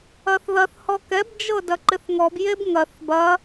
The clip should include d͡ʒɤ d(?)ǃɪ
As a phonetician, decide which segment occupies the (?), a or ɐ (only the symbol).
ɐ